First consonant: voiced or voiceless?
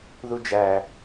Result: voiced